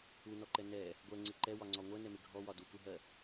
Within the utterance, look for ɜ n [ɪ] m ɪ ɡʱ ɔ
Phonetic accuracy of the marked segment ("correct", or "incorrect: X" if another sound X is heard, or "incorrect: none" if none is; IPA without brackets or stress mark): incorrect: ɛ